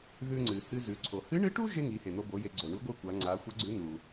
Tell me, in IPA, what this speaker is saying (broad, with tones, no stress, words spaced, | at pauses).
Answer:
ðʉ˧ŋ͡ǀɨ˩ hɨ˧zʉ˩˧ǀʰo˩ hɨ˧˥ɳɨ˧˥ʈu˥ ʒe˥ŋi˩˧he˩n̪o˧ bo˩˧je˩˧ ɡ͡ǀo˩ɳu˧˥ɡʷɨ˧˥ kʷa˩˧ ŋ͡ǀa˩˧xʷɐ˧˥ɡ͡ǀʉ˧˥ n̪u˩